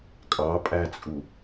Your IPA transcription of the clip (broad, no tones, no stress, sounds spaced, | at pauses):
kʼ ɑ pʼ æ t͡sʼ u